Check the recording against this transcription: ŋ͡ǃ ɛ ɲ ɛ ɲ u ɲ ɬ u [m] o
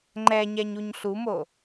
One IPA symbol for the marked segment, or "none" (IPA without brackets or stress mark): m